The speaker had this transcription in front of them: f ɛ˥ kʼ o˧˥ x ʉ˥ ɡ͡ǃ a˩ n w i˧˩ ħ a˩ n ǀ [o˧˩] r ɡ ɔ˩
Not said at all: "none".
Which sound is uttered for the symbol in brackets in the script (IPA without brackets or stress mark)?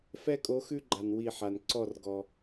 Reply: ɔ˧˩